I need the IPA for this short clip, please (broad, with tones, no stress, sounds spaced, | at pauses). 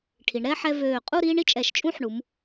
ʈʰ i˩˧ ɳ ɾ ɛ˥˧ ħ ɛ˧ v øː˧˩ qʼ u˥˧ ɾ iː˥ ɳ i˥ t͡ʃʼ ɛ˧˩ ʃ t͡ʃʼ ũː˥˧ ħ ɳ u˩˧ m